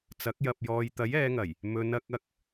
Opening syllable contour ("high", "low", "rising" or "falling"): rising